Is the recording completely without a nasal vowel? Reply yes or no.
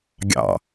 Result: yes